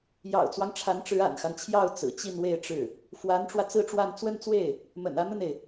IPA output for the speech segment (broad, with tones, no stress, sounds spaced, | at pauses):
j ɑ̰˨˩ ʊ̯ t͡s w ɑ˦ ŋ ʈ͡ʂʰ a˧˥ n ʈ͡ʂ ɻ̩˧˥ a̰˨˩ n x a˦ n t͡ɕʰ j ɑ˥˩ ʊ̯ t͡s ɹ̩˨˩ t͡ɕ i˥˧ n w e˥˧ ɪ̯ ʈ͡ʂ ɻ̩˥˩ | f w a˧˥ n ʈ͡ʂ w ä˧ t͡s ɹ̩˥˧ ʈ͡ʂ w a˥˧ n t͡s w ə˥˧ n t͡s w e˥˩ ɪ̯ | m ə̰˨˩ n ä˥˧ n̪ ə˥˩ n e˩ ɪ̯